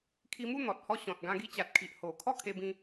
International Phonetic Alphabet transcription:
kʰ i˧ m u˥˧ n̪ ɔ˨ t̚ h ɔ˦ ɕ ɔ̃˨ t̚ ɡ ã˧ ɡ i˧ t͡ɕ a˨ t̚ kʰ i˨ ʔ h o˨˩ kʰ ɔ˥˧ kʰ e˧ b ĩ˧

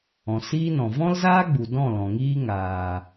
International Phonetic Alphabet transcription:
ɔ̃˨ s iː˦ n ɔ̃˨ v ɔ̃˦ l z aː˦ ɡ͡b u˨ d ɔ̃˦˨ l ɔ̃˨ ŋ iː˦ ŋ aː˨

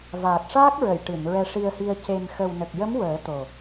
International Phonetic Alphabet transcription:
v aː˨˩ t̚ ʂ aː˦˥ k̚ ɹ ə˨˩˨ j ʈ ɨ˨˩˨ n ɹ ɛ˧ ʂ i˧ ə̯ h i˧ ə̯ c e˨˩ m x ə˨˩ w n ə˨˩ k̚ j ə˧˥ m w əː˨˩˦ t̪ o˨˩

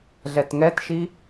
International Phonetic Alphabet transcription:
ɮ ɛ t ŋ ɛ t ʃ i

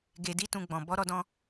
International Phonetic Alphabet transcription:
ɡ e˧ d i˦ t ũ˧ ɡ͡b ɔ̃˨ b ɔ˨˦ ɾ ɔ˧ d ɔ̃˧

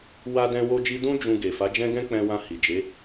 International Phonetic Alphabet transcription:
w a˦ d ɛ̃˦ w o˦ d͡ʒ i˦ d ũ˦ d͡ʒ ũ˧ ɡ e˨ f a˨˦ d͡ʒ ɛ̃˦ ɡ ɛ̃˦ k͡p ɛ̃˧ w ã˧ h i˨ d͡ʒ e˨˦

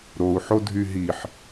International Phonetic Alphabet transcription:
ɾ o u̯ ħ o dʱ y ɦ i ħ

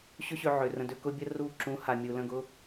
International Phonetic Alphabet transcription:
ɕ ʏ˦ ɕ ø˧ ʕ ʏ˨ r ə̃˧ d ʏ˧ k ʊ˦ bʲ ə˦ r u˦˨ ǁ ũ˨˦ h a˨ mʲ u˨ l ə̃˦˨ ɡ ʊ˦

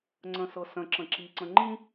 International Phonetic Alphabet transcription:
ŋ͡ǀ ə̃ s ɤ s ə̃ ǁ ə̃ ǁ i ǀ ə̃ ŋ͡ǃ ĩ

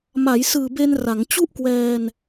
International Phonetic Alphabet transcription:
m a˩˦ j s ɯː˨˩ b e˧ n r a˩˦ ŋ t͡ɕ u˥˩ ʔ k w ɛː˧ n

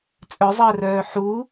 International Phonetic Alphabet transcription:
t͡sʼ œ zˤ əː r œː ħ u

